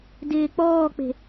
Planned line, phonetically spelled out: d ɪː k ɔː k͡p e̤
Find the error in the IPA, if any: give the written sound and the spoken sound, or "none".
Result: k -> k͡p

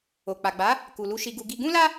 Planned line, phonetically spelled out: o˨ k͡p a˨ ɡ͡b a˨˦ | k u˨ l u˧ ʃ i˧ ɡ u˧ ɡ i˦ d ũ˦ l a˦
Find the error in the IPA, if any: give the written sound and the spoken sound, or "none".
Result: d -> ɡ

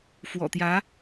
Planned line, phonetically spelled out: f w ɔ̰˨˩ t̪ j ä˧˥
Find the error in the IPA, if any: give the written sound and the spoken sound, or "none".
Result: none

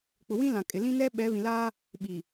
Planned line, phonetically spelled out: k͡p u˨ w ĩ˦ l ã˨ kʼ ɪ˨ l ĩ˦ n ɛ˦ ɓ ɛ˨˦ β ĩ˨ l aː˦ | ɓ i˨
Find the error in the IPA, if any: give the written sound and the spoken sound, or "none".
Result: u˨ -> ʊ˨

